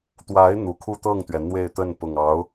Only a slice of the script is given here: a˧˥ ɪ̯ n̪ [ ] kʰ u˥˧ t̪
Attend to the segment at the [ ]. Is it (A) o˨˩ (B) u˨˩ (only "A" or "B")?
B